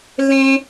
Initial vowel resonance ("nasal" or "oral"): nasal